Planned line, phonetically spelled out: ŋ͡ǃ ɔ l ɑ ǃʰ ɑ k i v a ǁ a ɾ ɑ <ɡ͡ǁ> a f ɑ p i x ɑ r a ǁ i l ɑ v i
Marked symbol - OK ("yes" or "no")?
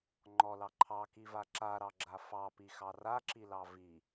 yes